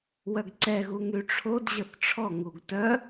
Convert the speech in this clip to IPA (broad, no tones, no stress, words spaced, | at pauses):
wœɡǀɛɣu ŋyʈ͡ʂʰod ʑəθʈ͡ʂʰɔ ŋuɡtœ